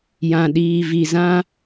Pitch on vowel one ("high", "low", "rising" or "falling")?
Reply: low